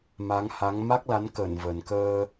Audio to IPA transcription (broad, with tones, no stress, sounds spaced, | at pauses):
m a˨˦ ŋ h a˨˦ ŋ m a˦˥ k̚ l a˨˦ n k əː˧˩ n v ə˨˩ n k əː˧